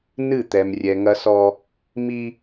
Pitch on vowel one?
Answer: falling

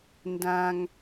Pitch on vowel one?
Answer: high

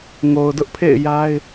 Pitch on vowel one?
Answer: low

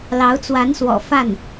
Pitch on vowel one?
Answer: rising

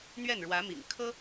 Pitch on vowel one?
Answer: falling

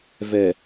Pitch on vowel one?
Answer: low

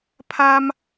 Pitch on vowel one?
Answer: high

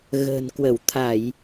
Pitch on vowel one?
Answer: low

